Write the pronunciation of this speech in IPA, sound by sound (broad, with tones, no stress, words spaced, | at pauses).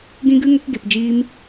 ɡĩ˧ɡɨ˧ ŋo˧kɡe˨pd͡ʒiː˧m